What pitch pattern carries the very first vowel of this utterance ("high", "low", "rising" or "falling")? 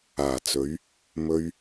low